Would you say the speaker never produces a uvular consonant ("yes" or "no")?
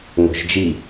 yes